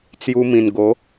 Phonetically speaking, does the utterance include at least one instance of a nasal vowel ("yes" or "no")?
yes